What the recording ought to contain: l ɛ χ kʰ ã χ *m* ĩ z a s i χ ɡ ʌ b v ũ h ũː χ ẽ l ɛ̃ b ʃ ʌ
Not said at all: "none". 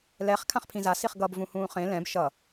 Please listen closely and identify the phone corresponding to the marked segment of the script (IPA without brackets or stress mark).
pʰ